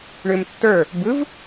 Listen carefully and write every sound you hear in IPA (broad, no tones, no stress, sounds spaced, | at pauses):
ɳ ʏ m tː ə˞ | b ɯ v